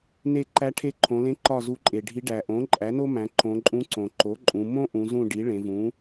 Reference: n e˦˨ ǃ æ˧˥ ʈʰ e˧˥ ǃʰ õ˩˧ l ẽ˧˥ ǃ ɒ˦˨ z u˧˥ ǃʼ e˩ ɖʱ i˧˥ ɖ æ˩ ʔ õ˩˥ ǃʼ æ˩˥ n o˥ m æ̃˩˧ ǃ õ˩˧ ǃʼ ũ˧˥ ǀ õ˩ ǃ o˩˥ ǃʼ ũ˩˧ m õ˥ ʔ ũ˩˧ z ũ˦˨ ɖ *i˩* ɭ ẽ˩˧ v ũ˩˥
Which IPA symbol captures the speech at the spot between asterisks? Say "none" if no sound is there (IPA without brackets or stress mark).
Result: i˩˥